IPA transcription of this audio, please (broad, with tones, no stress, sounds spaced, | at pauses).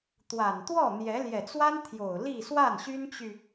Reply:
t̪ w a˨˩ n t̪ w ɔ˥˩ n̪ j ɛ˧˥ l j ɛ˨˩ t͡s w a˥ n t̪ʰ j o˨˩ ʊ̯ l i˥˧ s w a˥˩ n ɕ y˥ n t͡ɕ y˨